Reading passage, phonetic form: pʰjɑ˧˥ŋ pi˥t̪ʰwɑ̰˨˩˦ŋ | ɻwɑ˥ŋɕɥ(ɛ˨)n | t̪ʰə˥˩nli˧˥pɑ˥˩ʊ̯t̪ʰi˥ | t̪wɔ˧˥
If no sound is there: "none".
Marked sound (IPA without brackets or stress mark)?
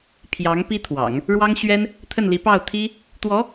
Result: ɛ˥